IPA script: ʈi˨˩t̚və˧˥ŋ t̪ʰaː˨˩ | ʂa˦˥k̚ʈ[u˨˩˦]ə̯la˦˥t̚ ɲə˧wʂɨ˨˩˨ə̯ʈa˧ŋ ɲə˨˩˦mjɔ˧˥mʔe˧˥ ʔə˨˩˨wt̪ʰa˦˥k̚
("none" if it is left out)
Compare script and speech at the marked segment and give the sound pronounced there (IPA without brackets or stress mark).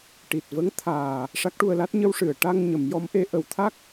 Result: u˧